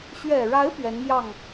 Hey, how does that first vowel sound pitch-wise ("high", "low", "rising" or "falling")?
low